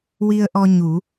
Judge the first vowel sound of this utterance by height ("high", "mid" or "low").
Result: high